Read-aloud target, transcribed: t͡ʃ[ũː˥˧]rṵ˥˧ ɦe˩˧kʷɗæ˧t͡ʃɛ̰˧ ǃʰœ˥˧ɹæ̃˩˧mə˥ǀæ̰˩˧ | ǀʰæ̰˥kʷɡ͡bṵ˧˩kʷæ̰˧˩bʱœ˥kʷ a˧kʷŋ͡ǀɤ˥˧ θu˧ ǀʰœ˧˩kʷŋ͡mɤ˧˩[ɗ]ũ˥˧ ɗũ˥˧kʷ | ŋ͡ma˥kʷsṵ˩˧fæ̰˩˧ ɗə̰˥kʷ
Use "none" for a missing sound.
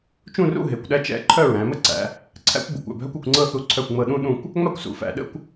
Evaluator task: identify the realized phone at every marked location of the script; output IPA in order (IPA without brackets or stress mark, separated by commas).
ũ˥˧, ɗ